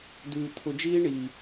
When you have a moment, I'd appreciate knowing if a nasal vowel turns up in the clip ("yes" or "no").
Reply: no